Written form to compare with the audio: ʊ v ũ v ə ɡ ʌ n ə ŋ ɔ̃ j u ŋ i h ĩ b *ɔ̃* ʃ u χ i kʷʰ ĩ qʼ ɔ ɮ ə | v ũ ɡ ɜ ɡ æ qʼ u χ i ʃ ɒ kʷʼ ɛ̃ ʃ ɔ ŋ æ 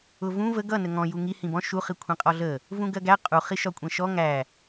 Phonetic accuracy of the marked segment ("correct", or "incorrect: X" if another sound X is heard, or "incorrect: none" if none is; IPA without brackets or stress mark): correct